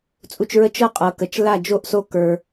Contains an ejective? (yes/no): yes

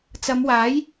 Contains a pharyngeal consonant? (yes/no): no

